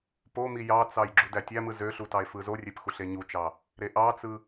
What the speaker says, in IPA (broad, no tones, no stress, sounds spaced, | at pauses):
p o m i j ɑ t͡s ɑ j ɡ͡ǁ u d æ tʲ æ m ɯ z ø ɬ u t ɑ e̯ f ɯ z o rʲ e p x u ɬ e ɲ u t͡ʃ ɑ | ɾ e ʔ ɑ t͡s ɯ